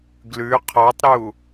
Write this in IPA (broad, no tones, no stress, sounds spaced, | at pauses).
ɡ l ʉ qʰ ɔ tˤ ɾ u